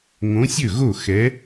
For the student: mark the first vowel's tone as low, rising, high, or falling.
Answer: rising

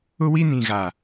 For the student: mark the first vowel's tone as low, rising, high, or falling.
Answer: high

